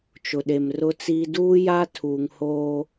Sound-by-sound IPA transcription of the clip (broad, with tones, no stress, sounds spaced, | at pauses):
t͡ʃ ʊ˨ ɗ e˨ m r ʊ˦ t͡s iː˦ d uː˦ j a˦ tʰ uː˨ ŋ h oː˦